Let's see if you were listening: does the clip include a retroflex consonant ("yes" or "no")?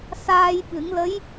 no